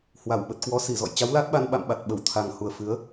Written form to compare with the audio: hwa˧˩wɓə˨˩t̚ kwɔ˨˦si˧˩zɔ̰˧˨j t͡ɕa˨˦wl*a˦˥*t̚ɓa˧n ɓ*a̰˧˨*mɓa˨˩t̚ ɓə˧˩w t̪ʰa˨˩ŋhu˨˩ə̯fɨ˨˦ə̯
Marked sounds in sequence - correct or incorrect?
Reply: correct, correct

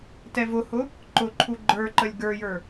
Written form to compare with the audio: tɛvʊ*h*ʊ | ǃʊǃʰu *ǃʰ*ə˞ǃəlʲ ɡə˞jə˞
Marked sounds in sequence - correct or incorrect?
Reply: correct, incorrect: ɡ͡ǃ

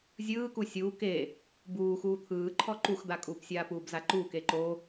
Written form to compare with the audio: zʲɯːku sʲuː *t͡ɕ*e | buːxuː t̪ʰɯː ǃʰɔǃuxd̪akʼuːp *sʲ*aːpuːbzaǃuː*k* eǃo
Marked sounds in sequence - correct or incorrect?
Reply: incorrect: k, correct, correct

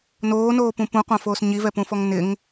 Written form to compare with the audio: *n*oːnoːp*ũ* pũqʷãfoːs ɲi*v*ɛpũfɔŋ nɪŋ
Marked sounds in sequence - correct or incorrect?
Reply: correct, correct, correct

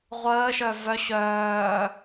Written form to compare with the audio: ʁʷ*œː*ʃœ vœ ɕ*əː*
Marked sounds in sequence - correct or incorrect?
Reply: incorrect: əː, incorrect: œː

